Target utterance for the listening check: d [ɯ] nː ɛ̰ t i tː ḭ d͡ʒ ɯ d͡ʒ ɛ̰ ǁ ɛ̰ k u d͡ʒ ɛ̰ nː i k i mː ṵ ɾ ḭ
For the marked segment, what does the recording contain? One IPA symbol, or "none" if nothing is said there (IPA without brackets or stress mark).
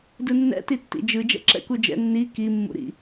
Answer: ɯ